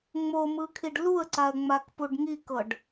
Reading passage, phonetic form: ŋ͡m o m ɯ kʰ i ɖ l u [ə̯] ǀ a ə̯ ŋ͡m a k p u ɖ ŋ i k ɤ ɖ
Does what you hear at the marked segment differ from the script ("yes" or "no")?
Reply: no